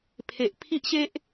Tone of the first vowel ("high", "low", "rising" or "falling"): low